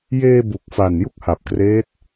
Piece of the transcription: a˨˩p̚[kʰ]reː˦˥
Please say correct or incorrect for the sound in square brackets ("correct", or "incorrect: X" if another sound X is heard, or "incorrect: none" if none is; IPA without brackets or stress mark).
incorrect: k